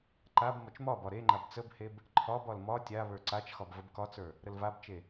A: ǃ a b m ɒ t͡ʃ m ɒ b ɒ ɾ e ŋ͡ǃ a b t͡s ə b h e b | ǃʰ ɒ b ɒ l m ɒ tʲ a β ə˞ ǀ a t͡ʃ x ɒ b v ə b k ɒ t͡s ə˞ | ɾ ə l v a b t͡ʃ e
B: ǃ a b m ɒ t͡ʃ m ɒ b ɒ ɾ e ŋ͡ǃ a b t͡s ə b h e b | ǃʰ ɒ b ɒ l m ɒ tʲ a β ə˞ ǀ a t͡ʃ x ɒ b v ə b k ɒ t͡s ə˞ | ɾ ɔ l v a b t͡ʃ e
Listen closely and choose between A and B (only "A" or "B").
A